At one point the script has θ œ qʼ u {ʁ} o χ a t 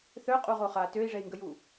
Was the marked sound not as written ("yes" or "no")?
no